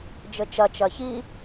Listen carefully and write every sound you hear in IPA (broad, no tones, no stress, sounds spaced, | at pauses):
d͡ʒ ɘ t͡ʃ ɐ t͡ʃ ɐ ç i